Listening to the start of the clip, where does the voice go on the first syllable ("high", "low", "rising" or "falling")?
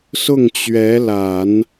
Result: falling